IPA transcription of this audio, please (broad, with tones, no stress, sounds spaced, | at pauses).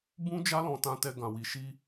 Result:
b ũ˦ d͡ʒ a˦ l ɔ̃˧ t ã˧ t ɛ˧ ɡ ã˨ w i˨ ʃ i˧